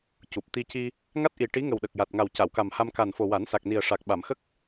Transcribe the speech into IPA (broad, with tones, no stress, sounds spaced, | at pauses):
c u˨˩ p̚ t̪ i˧ c i˧ | ŋ a˦˥ t̚ ʔ i˨˩ ʈ i˧˥ ŋ ə˨˩ w ɗ ə˨˩ k̚ j a˨˩ t̚ ŋ a˨˩ w c a˨˩˨ w k a˨˩ m h a˧ m k a˨˩ n f o˨˩ w a˨˩˦ n s a˨˩ k̚ n i˨˩ ə̯ ʂ a˨˩ k̚ ɓ a˨˩˨ m x ə˦˥ k̚